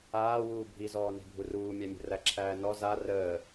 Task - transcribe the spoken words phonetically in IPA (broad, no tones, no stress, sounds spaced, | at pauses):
aː w uː bʱ i z ɔː n e̤ bʱ u r uː mʲ a mʲ ə̤ r æ ǁʰ æː n ɔ z a r əː